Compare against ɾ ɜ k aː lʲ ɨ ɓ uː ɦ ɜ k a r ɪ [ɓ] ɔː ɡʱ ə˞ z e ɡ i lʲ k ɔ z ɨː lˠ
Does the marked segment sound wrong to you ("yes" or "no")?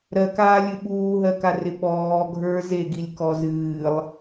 no